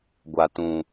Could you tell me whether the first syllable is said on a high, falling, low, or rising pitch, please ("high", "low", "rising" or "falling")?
low